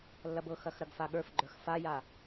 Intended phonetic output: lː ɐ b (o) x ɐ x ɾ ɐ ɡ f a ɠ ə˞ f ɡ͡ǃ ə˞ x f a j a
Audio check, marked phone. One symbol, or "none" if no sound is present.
ɤ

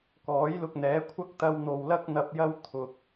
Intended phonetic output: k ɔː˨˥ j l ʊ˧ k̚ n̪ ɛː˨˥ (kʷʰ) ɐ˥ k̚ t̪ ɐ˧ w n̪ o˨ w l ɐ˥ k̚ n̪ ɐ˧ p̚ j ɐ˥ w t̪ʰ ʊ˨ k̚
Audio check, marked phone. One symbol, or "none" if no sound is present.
kʷʰ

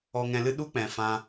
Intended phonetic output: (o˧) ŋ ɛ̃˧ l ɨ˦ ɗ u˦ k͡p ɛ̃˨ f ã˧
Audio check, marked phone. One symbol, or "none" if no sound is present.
ɔ˧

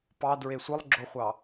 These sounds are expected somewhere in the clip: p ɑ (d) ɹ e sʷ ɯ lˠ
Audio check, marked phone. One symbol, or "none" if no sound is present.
d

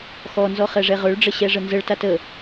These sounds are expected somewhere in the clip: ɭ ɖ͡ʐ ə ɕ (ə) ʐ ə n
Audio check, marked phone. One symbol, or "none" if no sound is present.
ɛ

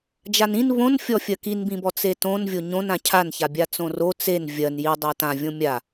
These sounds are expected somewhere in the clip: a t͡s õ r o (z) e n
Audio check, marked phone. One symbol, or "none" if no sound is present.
t͡s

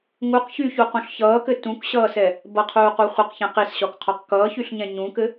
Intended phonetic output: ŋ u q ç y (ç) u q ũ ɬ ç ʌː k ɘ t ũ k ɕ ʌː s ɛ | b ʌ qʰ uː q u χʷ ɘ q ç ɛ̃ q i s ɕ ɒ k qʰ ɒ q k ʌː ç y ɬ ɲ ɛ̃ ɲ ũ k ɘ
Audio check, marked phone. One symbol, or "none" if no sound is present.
ç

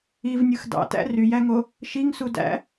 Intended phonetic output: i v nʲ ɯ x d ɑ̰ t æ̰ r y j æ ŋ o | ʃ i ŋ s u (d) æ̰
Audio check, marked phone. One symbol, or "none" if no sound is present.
d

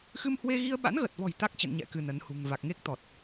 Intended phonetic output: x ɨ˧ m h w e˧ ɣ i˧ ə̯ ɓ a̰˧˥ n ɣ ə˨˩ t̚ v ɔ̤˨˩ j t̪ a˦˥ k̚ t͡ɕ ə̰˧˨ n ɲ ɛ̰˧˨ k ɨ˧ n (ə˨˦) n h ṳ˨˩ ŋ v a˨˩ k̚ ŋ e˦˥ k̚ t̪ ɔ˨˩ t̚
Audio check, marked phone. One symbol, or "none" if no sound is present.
ə˨˦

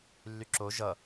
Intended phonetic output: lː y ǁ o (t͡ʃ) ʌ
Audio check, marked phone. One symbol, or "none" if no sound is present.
ʒ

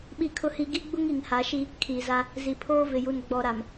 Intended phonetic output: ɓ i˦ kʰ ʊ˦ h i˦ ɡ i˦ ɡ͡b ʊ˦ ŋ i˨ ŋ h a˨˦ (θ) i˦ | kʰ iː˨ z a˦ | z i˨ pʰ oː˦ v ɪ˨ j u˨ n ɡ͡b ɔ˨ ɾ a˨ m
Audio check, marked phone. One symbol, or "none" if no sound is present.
ʃ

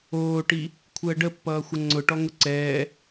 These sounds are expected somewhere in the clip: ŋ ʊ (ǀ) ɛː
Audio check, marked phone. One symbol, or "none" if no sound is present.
ǀ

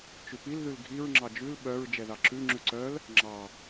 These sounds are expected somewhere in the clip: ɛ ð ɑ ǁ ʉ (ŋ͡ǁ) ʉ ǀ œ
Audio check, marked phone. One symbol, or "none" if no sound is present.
ŋ͡ǁ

